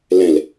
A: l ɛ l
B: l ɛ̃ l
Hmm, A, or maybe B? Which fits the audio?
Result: B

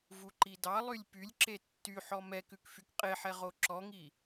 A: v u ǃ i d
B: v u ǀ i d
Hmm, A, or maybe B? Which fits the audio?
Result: A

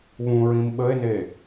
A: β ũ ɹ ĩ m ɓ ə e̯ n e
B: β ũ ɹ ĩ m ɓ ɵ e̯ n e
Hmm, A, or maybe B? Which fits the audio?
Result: A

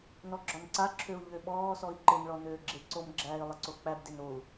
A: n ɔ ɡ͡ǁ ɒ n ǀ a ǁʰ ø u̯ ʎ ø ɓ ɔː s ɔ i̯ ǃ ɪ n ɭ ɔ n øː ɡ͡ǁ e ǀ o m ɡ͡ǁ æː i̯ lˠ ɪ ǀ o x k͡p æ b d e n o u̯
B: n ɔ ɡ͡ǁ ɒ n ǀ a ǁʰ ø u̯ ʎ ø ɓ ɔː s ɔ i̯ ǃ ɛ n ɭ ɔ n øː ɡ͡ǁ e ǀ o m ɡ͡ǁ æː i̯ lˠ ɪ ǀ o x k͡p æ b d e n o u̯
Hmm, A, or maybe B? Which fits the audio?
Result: A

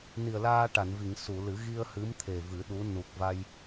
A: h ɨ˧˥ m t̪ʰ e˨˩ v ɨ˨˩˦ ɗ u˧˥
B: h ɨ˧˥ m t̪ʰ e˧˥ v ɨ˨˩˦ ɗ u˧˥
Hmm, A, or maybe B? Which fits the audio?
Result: A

